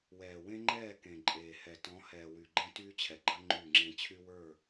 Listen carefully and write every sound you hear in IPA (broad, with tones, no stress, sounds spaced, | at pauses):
w ɛː˨ w ẽ˦ ŋ͡ǃ ɛː˦˨ k ẽ˨ ǃʼ eː˨ h ɛ˨ t ɔ̃˨˦ h ɛː˨ w y˨ ɡ͡ǃ ẽ˦ t yː˦ t͡ɕʰ ɛ˨ ɡ͡ǃ ɐ˦ ŋ͡ǃ y˦˨ ŋ͡ǁ ẽ˦ t͡ɕʰ y˦ w ə˞˦˨